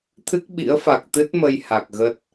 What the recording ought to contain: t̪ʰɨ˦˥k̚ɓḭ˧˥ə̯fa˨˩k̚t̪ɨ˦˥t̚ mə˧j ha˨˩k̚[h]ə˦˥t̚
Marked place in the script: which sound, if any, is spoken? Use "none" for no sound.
ɣ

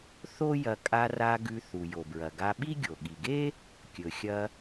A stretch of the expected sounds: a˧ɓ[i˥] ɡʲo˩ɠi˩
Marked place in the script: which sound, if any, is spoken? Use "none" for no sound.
i˥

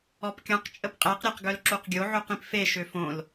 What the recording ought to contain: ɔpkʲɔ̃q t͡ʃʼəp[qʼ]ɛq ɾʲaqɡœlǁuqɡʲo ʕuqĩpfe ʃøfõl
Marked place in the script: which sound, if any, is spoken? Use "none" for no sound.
qʼ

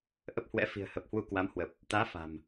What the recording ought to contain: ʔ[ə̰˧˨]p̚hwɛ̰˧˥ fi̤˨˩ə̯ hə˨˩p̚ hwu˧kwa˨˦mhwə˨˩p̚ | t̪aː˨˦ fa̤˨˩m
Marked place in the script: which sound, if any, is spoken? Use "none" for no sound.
ə˦˥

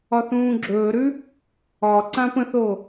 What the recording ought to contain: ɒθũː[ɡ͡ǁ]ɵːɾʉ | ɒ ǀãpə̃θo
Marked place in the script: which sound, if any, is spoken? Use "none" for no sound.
ɡ͡ǁ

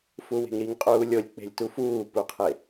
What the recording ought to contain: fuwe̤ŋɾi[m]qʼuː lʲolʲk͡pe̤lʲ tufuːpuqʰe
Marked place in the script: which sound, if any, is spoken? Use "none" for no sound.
ŋ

